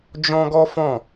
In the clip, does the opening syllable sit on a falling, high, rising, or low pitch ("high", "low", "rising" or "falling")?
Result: high